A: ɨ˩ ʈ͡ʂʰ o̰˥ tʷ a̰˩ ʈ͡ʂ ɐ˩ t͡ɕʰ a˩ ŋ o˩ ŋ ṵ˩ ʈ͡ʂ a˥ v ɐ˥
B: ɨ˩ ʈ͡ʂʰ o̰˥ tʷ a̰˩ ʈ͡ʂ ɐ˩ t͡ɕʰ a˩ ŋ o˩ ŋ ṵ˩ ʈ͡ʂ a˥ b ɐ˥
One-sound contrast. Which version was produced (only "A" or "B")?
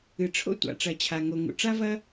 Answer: A